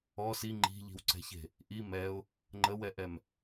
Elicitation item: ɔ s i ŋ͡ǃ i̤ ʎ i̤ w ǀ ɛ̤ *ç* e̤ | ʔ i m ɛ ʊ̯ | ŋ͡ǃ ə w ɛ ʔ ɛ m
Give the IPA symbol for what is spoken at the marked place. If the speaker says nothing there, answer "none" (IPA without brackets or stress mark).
ç